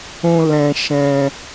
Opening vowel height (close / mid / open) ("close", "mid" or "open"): close